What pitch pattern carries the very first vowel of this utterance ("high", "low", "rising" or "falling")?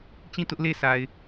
falling